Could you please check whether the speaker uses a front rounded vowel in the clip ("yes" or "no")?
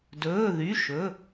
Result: yes